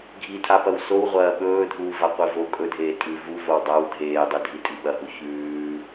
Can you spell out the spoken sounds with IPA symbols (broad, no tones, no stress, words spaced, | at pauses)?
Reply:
ɡʱitʰapɐw sowʁʷɐː ɓɵːdʱuːvaqʷi vo kʼɵdʱeː tʼʉ vuvow dˤaw dʱeːdˤɨdʱitʼi ɓɐɦu çʉː